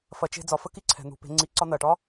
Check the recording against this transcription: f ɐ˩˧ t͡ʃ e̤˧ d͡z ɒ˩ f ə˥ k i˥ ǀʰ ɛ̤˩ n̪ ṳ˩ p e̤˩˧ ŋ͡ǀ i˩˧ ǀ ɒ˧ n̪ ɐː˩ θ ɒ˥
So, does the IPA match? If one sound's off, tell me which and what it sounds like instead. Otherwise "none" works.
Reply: θ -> ʈ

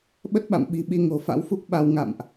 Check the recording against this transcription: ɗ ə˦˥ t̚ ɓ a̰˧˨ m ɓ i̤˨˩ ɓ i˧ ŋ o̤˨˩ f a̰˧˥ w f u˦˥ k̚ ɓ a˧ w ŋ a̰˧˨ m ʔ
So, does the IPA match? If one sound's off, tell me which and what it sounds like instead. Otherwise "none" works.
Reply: ɗ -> ɓ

